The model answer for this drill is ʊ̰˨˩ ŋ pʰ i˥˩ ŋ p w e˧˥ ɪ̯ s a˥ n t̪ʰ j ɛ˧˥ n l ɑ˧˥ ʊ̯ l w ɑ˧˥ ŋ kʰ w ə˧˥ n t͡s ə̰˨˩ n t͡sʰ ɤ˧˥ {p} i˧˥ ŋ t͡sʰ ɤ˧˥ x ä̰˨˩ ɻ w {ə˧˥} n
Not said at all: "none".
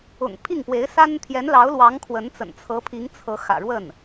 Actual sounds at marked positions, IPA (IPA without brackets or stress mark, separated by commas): pʰ, ə˥˩